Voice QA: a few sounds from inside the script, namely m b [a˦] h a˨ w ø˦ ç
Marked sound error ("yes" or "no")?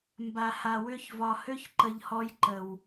yes